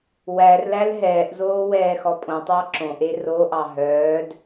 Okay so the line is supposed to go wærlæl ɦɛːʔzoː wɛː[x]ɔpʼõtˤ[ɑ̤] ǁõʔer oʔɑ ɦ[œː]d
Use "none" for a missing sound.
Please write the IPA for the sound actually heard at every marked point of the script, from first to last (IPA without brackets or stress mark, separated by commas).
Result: x, ɑ, œː